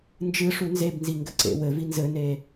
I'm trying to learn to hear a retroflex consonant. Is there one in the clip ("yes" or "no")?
yes